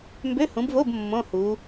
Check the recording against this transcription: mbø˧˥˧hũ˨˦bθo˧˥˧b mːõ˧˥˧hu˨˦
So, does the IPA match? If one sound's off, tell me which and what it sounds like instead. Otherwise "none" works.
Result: θ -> v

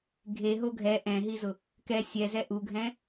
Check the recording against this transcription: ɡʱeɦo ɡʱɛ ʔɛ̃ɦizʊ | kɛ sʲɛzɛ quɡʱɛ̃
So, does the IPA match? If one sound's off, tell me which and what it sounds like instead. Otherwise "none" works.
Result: q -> ʔ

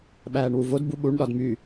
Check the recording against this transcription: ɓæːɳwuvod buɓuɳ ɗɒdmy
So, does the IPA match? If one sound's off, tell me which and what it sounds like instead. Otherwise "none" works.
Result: none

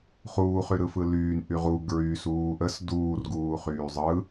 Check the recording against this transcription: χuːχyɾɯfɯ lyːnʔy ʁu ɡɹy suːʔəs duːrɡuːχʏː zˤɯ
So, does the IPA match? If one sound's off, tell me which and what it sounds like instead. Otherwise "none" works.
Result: ʏː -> yː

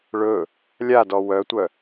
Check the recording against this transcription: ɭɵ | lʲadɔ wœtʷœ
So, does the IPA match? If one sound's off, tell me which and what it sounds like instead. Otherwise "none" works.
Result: none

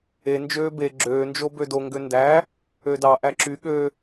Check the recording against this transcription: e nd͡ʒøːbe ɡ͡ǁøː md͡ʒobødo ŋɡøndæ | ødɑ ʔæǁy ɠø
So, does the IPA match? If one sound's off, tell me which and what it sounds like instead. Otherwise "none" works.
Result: m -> n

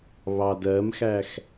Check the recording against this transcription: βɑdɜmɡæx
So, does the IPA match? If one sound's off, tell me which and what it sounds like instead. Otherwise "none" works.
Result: ɡ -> x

